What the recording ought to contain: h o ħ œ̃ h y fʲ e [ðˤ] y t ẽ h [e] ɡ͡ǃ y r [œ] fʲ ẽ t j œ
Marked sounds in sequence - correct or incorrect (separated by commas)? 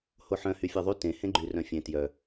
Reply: correct, incorrect, incorrect